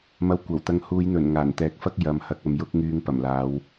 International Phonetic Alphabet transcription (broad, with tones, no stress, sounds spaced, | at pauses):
m ɐ˧ w kʷ ɐ˨˩ w t̪ ɐ˧ ŋ h uː˨˧ j n̪ ɵ˨˩ n ŋ aː˨˩ n t̪ ɛː˨˥ k̚ f ɐ˥ k̚ j ɐ˨ m h ɐ˧ k̚ ɐ˨˧ m j ʊ˥ k̚ ŋ yː˧ ŋ p ɐ˨˩ m l aː˨˧ w